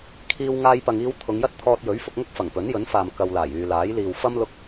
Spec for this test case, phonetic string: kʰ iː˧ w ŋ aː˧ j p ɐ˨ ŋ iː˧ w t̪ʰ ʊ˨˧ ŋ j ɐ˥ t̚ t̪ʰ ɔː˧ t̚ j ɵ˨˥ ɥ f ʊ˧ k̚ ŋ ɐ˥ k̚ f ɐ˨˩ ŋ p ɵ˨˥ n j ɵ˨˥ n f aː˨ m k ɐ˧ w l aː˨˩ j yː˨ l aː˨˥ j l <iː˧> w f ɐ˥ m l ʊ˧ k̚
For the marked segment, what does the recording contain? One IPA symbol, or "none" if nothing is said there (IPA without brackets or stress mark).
iː˨